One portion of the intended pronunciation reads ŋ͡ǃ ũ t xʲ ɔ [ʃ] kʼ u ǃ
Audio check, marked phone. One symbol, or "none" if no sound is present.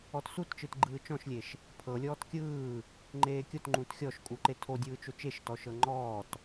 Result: ʃ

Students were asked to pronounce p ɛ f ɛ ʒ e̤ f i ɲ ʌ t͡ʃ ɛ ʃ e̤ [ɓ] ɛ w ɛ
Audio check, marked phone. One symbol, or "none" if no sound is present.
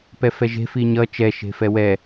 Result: f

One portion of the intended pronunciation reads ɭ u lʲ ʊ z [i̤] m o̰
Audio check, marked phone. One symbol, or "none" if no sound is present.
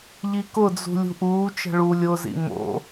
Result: ḭ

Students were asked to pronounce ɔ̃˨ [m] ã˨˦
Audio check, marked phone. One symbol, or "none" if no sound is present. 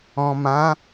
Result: m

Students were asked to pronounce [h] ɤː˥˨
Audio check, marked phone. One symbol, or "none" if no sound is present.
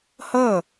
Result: h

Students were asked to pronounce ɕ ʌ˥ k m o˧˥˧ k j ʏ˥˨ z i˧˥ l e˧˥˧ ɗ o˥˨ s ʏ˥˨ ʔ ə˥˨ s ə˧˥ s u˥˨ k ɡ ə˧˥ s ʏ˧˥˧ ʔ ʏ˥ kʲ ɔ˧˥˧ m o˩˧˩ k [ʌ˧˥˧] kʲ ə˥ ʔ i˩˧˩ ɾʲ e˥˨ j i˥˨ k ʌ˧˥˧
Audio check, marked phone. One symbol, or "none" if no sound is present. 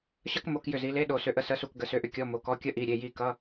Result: ɔ˧˥˧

